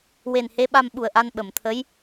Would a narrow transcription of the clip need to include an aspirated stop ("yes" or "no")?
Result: yes